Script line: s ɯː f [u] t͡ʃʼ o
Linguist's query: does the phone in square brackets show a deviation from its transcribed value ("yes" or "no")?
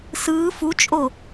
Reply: no